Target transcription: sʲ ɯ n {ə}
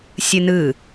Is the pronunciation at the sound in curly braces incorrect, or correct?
incorrect